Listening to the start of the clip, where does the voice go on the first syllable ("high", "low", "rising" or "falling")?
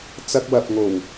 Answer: high